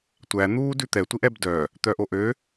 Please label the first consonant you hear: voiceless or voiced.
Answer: voiceless